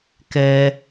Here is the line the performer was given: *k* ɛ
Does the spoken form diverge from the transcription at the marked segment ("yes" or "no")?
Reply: no